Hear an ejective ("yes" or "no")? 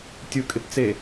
yes